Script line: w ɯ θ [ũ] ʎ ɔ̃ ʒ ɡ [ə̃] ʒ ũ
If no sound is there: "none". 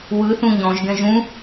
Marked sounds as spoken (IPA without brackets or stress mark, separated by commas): ũ, ɛ̃